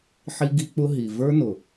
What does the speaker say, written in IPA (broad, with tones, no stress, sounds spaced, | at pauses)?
ħ i˦ ɡ i˦ k͡p ʊ˦ ɦ i˨ v ə˞˦ n ʊ˨